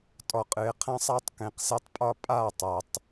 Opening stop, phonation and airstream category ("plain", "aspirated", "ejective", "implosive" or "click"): ejective